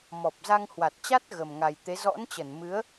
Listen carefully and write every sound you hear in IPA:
m ɔ˨˩ p̚ z a˧ ŋ h w a˨˩ t̚ t͡ɕ a˦˥ t̚ ɣ ə˨˩ m ŋ a˨˩ j t̪ e˨˦ z ɔ̰˧˥ n t͡ɕ ə˧˩ n m ɨ˨˦ ə̯

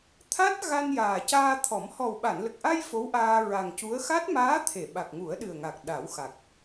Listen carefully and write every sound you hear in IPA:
t̪ʰ a˦˥ t̚ ɣ a˧ n j aː˨˩ c aː˧ t̪ʰ ɔ˨˩˦ m h ɔ˨˩ w ɓ a˨˩˨ n l ə˨˩ k̚ ʔ a˧ j f o˧˥ w ʔ aː˧ ɹ a˨˩ ŋ c u˧˥ ə̯ x a˦˥ t̚ m aː˧˥ t̪ʰ e˨˩˨ ɓ a˨˩ k̚ ŋ u˨˩˦ ə̯ ɗ ɨ˨˩ ə̯ ŋ a˨˩ k̚ ɗ a˨˩˦ w x a˨˩ k̚

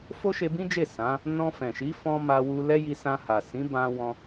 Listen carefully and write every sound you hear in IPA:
f o˦ ʃ e˧ b ĩ˦ d͡ʒ e˦˨ s ã˨˦ | n ɔ̃˧ f ɛ̃˨ ʃ i˨˦ f ɔ̃˧ m a˧ w u˧ l ɛ˦ j i˧ s ã˧ h a˨ s ĩ˨˦ b ã˧ w ɔ̃˧

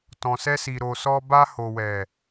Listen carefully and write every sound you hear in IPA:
t ɔ̃˨ s ɛ˧ s i˨ ɾ o˨ s ɔ˧ b a˧ h o˨ w ɛ˨

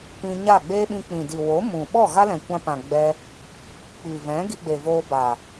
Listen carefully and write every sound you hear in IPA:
p ĩ˧ ɲ a˦˨ ɡ͡b eː˦ ɓ ĩ˧ k͡p ĩ˨ d i˨ w o˨˦ m ũ˨ ɓ ɔ˦˨ ɣ a˦ l ɛ̃˨ kʷ ã˧ p ã˨ ɡ͡b ɛ˧ | k͡p i˨ v ɛ̃˨˦ ɡ i˧ ɡ͡b e˨ v oː˧ b a˨

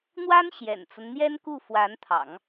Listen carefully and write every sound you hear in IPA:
n̪ w a˥ n ɕ j ɛ̰˨˩ n t͡s ə˦ n n̪ j ɛ˥ n k u˥˩ f w a˧˥ n t̪ʰ ɑ̰˨˩˦ ŋ

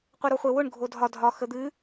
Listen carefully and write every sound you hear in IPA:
qʷ ɛ ɾ o χʷ e w ʊ ɳ ɡʱ o dʱ ɒ dʱ ɒ x ə d̪ ɨ

